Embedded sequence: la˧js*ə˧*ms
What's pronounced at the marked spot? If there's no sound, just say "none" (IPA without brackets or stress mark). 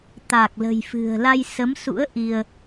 ə˨˦